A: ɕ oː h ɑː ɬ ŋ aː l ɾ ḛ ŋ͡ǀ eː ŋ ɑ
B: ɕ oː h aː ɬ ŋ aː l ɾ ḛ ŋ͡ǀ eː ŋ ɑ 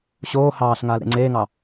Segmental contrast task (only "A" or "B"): A